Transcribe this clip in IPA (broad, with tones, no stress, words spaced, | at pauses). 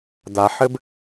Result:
d̪a˩ħɘ˧b